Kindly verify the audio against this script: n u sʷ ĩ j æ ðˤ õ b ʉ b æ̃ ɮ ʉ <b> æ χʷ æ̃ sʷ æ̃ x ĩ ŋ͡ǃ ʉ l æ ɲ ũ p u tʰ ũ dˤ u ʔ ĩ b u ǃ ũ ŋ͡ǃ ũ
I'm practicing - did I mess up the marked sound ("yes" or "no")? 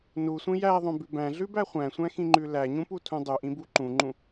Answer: no